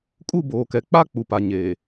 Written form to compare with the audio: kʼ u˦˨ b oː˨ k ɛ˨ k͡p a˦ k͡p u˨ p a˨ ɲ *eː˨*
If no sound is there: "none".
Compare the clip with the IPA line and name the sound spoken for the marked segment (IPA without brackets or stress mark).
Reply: eː˨